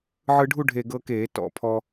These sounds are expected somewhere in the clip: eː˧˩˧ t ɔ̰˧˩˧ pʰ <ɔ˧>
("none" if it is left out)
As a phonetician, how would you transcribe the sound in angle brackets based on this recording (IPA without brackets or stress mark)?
ɔ˧